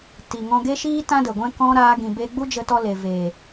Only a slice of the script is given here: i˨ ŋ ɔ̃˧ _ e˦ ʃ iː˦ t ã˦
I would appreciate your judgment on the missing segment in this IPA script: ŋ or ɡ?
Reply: ɡ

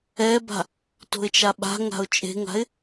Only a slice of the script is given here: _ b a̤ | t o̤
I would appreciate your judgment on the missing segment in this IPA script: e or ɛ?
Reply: ɛ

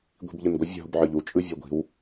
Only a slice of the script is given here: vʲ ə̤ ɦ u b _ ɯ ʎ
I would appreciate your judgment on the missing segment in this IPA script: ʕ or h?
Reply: ʕ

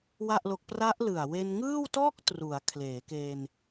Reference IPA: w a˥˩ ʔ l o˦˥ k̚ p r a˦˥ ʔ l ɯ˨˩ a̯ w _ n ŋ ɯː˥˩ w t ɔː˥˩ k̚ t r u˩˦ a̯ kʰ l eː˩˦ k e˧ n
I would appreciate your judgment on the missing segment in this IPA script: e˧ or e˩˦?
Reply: e˧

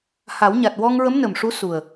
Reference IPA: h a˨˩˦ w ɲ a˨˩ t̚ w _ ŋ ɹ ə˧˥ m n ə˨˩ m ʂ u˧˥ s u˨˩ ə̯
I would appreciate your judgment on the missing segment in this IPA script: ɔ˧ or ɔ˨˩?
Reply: ɔ˧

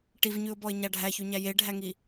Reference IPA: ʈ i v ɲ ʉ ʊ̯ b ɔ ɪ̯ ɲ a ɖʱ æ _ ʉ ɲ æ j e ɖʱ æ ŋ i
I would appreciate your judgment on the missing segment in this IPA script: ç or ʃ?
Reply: ç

